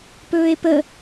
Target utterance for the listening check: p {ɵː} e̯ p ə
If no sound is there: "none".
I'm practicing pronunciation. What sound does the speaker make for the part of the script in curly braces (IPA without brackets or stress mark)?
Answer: ɵː